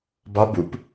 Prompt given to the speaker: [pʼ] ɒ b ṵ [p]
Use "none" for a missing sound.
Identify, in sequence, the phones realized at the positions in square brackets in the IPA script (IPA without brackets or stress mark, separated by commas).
b, p